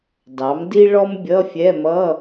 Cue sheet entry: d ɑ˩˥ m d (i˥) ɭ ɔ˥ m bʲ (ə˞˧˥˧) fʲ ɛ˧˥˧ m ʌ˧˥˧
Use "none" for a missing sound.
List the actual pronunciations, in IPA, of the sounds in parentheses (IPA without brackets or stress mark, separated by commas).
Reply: i˥, ʌ˧˥˧